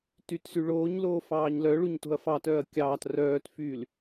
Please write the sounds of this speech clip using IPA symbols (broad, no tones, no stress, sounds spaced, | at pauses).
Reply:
t y t s y ɭ oː ɲ l oː f ɑː ɲ l œ ɭ u ɲ t o̤ ɐ̯ f ɑ t œː ɐ̯ kʲ ɑː t r œː t f yː l